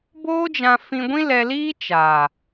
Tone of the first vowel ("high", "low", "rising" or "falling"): high